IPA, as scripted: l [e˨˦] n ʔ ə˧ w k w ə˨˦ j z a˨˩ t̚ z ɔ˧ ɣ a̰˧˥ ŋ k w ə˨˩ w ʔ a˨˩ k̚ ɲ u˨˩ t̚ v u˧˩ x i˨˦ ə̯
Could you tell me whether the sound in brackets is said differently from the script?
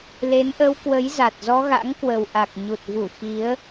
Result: no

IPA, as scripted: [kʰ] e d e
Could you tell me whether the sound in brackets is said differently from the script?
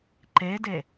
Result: yes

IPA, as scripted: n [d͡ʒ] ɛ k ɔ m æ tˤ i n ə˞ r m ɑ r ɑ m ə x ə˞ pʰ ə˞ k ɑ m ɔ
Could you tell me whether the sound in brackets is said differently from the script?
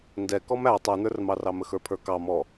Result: yes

